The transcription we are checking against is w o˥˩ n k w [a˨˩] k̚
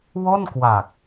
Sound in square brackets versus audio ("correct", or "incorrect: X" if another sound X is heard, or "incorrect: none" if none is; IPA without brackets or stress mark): correct